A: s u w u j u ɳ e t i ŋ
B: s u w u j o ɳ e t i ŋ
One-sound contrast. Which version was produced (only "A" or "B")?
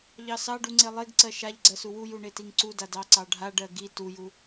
A